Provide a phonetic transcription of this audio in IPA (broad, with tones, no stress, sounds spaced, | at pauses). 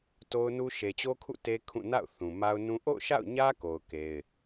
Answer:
t o˦ ʊ̯ n u˦ ʃ e˨ t͡ɕ o˦ kʰ ṵ˦˨ t e˦ kʰ ũ˦˨ n a̰˦˨ ʊ̯ θ ũ˨ m a˦ ʊ̯ n ũ˦ ʔ o̰˦˨ ʊ̯ ʃ a̰˦˨ ʊ̯ ɲ ä˦ k o˨ ʊ̯ k e˦ ɪ̯